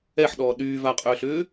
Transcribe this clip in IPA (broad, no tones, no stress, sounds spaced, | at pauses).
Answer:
ɛ ħ ɗ ɔː ɗ yː v a qʼ ʏː ɬ ʏː